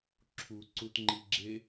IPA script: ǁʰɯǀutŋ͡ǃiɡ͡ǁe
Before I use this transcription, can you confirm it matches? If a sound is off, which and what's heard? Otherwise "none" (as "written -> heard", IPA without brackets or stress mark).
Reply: ɯ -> u